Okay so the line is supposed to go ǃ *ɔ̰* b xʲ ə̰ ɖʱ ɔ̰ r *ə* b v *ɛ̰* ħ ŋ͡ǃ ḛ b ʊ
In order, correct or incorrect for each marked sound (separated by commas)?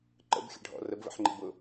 incorrect, correct, incorrect